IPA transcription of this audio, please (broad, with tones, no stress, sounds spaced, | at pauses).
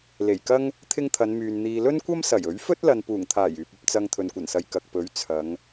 l e˨˩ j k ɐ˥ ŋ | t̪ʰ ɪ˥ ŋ t̪ʰ ɐ˨˧ n m yː˨ n n̪ iː˨ l ɵ˥ n kʷ ɐ˥ m s ɐ˨˩ j ɵ˨˥ ɥ f ɵ˥ t̚ l ɐ˨ n p uː˨˩ ŋ t̪ʰ aː˨˩ j yː˨ p̚ ɐ˨ p̚ t͡s ɐ˧ ŋ t̪ʰ ɵ˨ n kʷ ɐ˨˩ n s ɐ˨ j k ɐ˨ k̚ p ɵ˨˥ ɥ t͡sʰ ɐ˨˧ ŋ